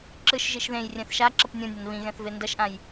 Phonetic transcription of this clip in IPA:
ǁ ɯ ʃ ʒ i ʃ ð ẽ j rʲ ɛ̃ θ ʃ a ǁ ʌ p nʲ õ nʲ a n β ĩ ɣ ɛ̃ θ v e n d ʌ ʃ ʔ ã j

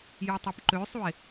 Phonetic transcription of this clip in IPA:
j u tˤ o p ǃ ø sˤ u e̯

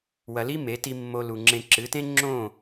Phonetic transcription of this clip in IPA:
w ɐ˧ l i˦ m e˨˦ t i˧ mː o˧ l u˨ ŋ͡ǁ ẽ˧ ǁ ɨ˨˦ t ẽ˦ ŋ͡ǁ õ˦˨

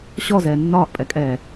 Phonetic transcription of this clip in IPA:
ɕ ɔ z ɛː nː ɒː ʔ pʼ ɛ kʼ ɛː

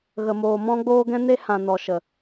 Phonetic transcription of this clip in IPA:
ɣ ə˦ m oː˦ m ɔ̃˦ ɡ͡b oː˦ ɡ ɛ̃˦ n e˦ h ã˨ n ɔ˨ ʃ ə˨

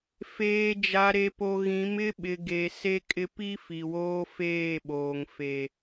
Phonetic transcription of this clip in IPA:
f eː˨ d͡ʒ a˨ ɾ e˨ p o˨ ɣ ĩ˨˦ m ɪ˦ ɓ ɪ˨ ɡ e˨ s e˦ kʼ ɪ˦ p i˦ f i˨ w oː˦ f eː˦˨ ɓ oː˨ ŋ f e˨

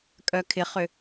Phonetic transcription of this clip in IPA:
kʼ œ kʰ ɪ χ ʏ

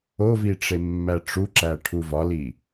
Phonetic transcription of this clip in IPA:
o v i ʈ͡ʂ e mː æ ʈ͡ʂ u ǁ æ ʈʰ u v ɒ l i

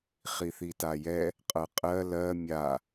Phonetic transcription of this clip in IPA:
χ i θ i t a j ɛ | qʼ ɤ qʼ ɜ l ɜ mʲ a

